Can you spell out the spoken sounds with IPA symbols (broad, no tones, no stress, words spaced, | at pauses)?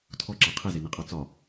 tʰɔǁa qʰezeneqʼɑ t͡sɒ